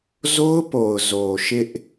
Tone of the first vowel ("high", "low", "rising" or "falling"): high